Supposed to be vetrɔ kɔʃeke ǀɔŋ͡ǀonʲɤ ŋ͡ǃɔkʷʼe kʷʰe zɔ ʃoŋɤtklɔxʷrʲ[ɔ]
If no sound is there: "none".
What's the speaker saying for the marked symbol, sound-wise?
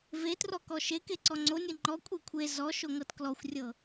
ɤ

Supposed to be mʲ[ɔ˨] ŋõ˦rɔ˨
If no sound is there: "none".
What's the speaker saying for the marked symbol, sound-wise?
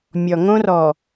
ɔ˨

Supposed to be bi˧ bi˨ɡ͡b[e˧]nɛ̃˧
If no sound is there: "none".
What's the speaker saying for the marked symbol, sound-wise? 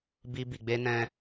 e˧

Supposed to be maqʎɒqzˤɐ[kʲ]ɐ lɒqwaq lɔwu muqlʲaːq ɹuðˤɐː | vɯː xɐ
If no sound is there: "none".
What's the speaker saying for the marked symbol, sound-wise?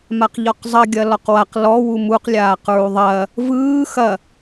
ɡʲ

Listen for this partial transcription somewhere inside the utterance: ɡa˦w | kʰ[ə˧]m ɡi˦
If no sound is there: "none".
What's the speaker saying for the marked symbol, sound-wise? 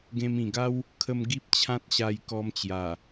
ə˧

